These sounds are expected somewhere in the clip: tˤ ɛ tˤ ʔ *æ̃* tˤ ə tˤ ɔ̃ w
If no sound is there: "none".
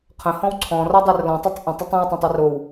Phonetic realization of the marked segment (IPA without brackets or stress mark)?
ə̃